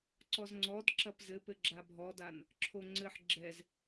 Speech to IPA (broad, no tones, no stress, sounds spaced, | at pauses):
ǀ ɔ z ŋ͡ǀ ɔ d ǁ ɐ p z ɘ p ɘ ɡ͡ǁ a bʱ ɔ d a n | ǁʰ o ŋ͡ǀ ɘ ħ ɡ͡ǁ ɛ z